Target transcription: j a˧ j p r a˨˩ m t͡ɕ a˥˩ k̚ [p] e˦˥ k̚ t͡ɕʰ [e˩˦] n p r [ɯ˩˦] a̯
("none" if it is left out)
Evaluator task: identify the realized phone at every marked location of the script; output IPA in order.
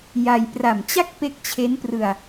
p, e˦˥, ɯ˧

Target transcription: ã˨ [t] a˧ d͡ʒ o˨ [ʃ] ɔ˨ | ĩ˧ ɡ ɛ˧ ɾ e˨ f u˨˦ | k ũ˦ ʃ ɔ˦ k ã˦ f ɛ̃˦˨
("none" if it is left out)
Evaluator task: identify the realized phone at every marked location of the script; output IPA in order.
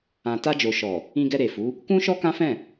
t, ʃ

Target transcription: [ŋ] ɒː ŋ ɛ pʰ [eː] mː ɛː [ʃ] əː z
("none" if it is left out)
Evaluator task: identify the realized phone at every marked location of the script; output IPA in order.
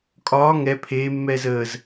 kʼ, eː, z

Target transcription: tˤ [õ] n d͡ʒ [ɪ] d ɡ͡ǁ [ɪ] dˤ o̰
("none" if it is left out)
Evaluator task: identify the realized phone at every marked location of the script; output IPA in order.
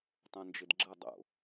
õ, ɪ, ə

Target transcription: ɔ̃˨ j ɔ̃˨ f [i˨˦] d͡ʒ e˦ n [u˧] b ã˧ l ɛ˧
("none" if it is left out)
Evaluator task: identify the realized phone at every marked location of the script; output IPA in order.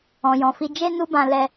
i˧, u˦

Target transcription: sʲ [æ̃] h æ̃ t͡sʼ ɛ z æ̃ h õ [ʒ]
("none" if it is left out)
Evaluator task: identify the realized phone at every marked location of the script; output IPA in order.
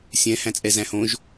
ɛ̃, ʒ

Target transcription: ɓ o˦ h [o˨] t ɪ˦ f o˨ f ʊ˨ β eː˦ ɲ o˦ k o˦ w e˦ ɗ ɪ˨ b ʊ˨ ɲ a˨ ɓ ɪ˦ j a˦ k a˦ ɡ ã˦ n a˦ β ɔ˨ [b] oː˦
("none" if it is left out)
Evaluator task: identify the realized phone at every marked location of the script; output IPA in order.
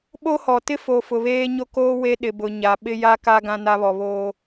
ɔ˨, β

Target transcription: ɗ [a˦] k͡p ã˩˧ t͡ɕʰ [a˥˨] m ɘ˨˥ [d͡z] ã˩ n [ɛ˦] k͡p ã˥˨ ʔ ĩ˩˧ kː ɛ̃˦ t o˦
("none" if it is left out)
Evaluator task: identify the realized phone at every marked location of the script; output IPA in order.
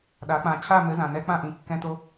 a˩˧, a˥˨, z, ɛ˦

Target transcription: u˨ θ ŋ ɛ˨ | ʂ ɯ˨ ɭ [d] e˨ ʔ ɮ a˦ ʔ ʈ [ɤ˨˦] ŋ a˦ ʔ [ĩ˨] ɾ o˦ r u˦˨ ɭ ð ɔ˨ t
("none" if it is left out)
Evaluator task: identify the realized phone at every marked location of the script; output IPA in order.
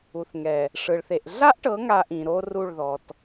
θ, ɤ˨˦, ĩ˨

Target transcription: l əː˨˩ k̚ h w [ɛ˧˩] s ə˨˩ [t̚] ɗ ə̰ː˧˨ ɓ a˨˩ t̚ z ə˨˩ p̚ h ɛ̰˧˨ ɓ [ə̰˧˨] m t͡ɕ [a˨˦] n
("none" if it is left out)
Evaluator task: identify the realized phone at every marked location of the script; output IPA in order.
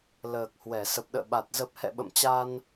ɛ˧˩, p̚, ə̰˧˨, a˧

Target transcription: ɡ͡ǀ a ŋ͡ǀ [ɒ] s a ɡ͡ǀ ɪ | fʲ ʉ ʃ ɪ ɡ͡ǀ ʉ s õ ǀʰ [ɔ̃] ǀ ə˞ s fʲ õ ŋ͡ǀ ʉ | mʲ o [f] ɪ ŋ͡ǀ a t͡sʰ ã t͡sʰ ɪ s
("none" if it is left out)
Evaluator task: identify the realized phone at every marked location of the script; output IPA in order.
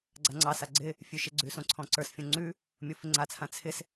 ɑ, ɔ̃, f

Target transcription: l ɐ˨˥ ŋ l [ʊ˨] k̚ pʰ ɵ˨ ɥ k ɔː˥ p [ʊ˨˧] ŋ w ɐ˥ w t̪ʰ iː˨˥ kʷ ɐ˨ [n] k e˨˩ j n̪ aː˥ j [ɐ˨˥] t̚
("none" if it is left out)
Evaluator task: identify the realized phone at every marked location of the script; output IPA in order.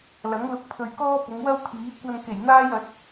ʊ˧, ʊ˨˧, n, ɐ˨˥

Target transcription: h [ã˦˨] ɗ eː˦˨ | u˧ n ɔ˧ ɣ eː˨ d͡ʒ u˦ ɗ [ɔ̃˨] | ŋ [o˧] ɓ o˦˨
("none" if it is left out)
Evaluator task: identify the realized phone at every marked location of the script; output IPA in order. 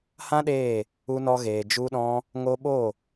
ã˦, ɔ̃˦, o˧

